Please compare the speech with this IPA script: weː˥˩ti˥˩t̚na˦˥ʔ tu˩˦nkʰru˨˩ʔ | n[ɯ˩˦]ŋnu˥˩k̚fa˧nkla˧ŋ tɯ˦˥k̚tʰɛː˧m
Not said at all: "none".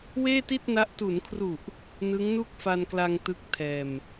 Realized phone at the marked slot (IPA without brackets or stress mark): ɯ˦˥